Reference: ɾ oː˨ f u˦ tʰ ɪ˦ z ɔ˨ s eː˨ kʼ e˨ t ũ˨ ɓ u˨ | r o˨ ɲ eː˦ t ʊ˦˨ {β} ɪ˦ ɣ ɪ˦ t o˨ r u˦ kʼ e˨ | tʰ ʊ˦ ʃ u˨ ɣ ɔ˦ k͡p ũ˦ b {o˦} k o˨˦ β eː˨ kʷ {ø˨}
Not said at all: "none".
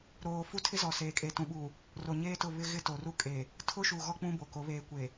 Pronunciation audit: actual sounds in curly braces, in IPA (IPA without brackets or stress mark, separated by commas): β, o˨, e˨